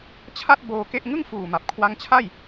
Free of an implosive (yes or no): yes